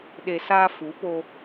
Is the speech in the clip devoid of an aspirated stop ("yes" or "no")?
yes